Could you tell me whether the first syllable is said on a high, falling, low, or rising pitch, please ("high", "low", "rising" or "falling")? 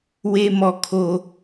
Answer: low